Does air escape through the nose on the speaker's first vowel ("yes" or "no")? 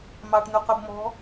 no